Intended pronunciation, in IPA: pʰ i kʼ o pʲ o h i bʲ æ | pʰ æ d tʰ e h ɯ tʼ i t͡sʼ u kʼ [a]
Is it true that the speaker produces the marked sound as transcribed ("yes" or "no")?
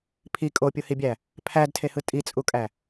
no